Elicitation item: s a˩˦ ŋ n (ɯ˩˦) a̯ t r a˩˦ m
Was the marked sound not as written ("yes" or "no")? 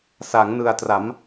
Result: yes